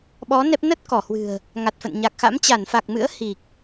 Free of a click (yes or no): yes